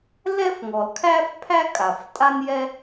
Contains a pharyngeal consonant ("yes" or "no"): no